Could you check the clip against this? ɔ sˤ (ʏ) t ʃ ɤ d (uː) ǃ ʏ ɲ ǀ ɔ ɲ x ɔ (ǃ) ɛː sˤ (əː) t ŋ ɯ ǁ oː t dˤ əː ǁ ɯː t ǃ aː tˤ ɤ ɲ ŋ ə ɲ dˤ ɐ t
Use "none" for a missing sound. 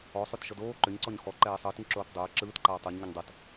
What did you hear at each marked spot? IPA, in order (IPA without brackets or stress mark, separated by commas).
ʏ, oː, ǃ, əː